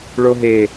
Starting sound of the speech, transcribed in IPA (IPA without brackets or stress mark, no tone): ɭ